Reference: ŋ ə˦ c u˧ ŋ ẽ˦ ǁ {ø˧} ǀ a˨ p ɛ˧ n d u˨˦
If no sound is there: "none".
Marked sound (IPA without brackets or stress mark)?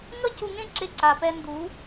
e˧